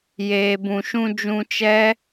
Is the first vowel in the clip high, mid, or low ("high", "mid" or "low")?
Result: mid